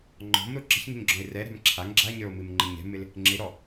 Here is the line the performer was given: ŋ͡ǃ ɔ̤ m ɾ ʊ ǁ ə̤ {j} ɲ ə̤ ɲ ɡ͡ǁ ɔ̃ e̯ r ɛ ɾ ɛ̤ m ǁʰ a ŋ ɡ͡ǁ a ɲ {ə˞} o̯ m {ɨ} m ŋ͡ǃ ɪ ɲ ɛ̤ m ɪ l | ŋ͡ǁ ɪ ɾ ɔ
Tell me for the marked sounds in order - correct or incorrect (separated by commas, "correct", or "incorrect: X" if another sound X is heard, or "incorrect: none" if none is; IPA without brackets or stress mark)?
incorrect: ç, correct, correct